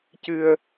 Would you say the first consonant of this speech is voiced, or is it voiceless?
voiceless